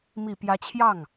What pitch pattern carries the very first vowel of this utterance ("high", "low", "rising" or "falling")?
low